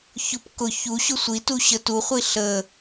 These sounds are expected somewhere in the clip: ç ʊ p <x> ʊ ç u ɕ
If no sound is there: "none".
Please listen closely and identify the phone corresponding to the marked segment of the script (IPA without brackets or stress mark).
k